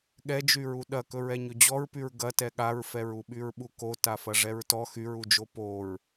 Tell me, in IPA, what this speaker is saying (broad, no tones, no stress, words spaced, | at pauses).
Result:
ɠɛd͡ʒyɹu ɗɐkɵɹɛ ɲɵd͡ʑɔɹpyɹ ɡɐtɛ ɠaɹfɛɹuɓyɹ ɓuko tafɐʐɛɹtɔ xyɹud͡ʒo poɹ